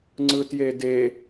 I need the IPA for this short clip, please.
ŋ͡ǀɯtjede

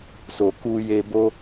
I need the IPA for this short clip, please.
so˨ku˧je˧ bo˦

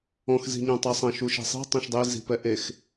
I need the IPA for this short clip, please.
ɔ̃x zi̤ɲãtˤɘsˤɐ̃ ʃuʃɛ̤sˤi̤ tˤɐ̃ʃdˤe zi̤pɛʔex

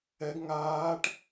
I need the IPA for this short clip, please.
ɛɡ ŋaːʈ

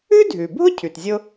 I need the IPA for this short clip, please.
ʉ˥dʱʉ˩bʱʊ˥ cʰʉ˩tzʲʊ˥

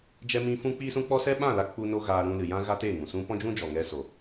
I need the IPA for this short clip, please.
d͡ʒɛ˦mĩ˦ fũ˦k͡piː˦sũ˦ k͡pɔ˦sɛ˦ ɓã˦˨la˧ k͡pu˧no˧ ɣaː˧ɾũ˧lɨ˨jã˦ ɣa˦teː˦˨ŋũ˨sũ˦ pɔ̃˦d͡ʒũ˦d͡ʒɔ˨ŋɛ˧ so˨

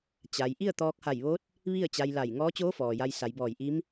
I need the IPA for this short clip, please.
t͡ɕa˧j ʔi˥˨ə̯t̪ɔː˧k̚ha˧˩jʋo˧˥t̚ | ʋi˥˨ə̯t͡ɕa˧j la˧˩j ŋɔː˧˥t͡ɕoː˧˥ fɔː˩ja˧j sa˩˧jbɔː˧˩jʔi˧˥m

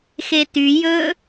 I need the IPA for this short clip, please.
xety jɵ

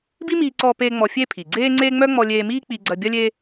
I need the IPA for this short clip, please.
bi˥miː˧ǀɔː˧peː˧ ŋ͡mɔ˧fʲe˥pʰi˩ ɡ͡ǀeː˥ŋ͡ǀe˥ ŋ͡mœ˥ ŋ͡mɔ˧lʲeː˧miː˥ k͡pi˧ɡ͡ǀɐ˧ bʲɐ˥lʲe˥

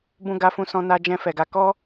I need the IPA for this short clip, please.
bũ˧ɡa˧fũ˧sɔ̃˧ na˧d͡ʒɛ̃˧ fɛ˨ɡa˧ kɔ˦

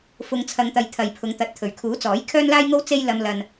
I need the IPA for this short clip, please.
fʊ˧ŋt͡sʰɐ˧ŋt̪ɐ˧j t̪ʰɐ˧jpʰʊ˧ŋt̪ɐ˧t̚ t̪ʰɵ˨˩ɥkʰuː˨˥t͡sɔː˨˥j kʰœː˥nlaː˥jŋo˥w t͡se˥j lɐ˧m lɐ˧n

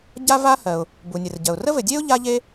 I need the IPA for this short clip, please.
ɟa˥va˥hɜ˩ʊ̯ | bu˩nʲɘ˩r ɟɜ˩ʊ̯ rə˥vɘ˩dʲe˥ʊ̯ ʎa˥ʎe˥

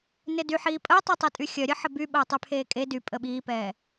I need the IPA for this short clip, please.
nɪdyħiː pʼəːtˤitˤi tʼyxʲœɾʲə ħəby ɓəːtˤypʰeːkʼe dy pʼəɓiːpɛː

